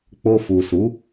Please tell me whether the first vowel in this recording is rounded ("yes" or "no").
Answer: yes